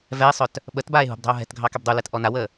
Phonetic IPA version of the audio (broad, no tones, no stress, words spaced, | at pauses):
vɛe̯sˤœt | ɓət baːe̯ɦṳbdˤɛ̤o̯ ɦɛ̤tɡʱɑ kɛbdˤulɛt ʔɔnawəː